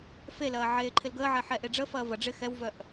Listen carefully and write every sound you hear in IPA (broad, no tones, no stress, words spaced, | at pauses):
felɐː ʕeːǃʰɪlɡəːʕɛ ħɛʔeɖ͡ʐəfɐː vɐ ɖ͡ʐɪ xɛwvœʔ